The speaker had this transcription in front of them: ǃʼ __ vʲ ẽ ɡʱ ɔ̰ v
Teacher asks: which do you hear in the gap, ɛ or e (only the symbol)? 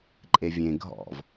e